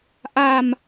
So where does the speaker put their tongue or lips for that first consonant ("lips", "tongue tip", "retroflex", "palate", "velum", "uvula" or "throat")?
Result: throat